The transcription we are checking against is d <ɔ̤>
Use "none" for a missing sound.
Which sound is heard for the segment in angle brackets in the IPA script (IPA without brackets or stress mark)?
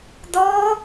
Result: ɔ